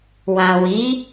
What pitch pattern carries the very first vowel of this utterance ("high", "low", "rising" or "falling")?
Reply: low